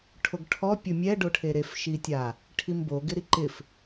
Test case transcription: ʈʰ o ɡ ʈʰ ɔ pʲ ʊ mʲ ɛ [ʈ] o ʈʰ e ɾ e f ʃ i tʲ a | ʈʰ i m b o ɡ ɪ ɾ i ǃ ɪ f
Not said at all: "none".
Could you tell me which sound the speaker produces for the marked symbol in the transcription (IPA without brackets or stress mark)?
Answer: ɖ